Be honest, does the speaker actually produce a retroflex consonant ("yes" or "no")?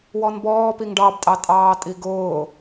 yes